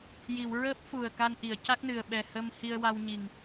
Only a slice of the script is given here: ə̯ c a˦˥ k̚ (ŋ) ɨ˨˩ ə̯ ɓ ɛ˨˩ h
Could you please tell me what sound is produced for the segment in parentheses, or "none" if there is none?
n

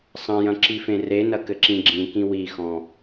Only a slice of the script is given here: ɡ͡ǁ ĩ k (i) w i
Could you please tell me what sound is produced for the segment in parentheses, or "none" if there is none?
ĩ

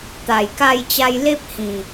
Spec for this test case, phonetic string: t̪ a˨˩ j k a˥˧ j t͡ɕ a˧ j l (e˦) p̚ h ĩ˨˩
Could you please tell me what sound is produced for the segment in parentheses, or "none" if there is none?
e˦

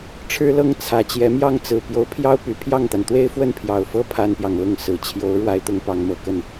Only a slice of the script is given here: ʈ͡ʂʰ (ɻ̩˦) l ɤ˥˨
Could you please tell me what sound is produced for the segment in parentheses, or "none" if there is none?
ɻ̩˦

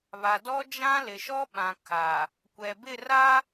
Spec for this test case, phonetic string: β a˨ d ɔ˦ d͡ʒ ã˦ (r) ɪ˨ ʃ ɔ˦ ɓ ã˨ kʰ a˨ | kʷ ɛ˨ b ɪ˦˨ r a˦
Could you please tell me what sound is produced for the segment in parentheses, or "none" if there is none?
l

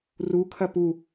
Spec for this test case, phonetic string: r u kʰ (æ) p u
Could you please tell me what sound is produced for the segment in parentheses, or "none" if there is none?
ɐ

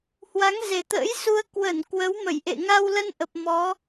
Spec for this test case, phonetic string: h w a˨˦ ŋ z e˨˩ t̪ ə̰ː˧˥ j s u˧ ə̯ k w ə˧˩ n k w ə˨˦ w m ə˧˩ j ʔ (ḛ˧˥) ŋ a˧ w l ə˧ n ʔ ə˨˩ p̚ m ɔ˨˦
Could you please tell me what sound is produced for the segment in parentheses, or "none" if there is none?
ḛ˧˨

